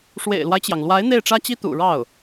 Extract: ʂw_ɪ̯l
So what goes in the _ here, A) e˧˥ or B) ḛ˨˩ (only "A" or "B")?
B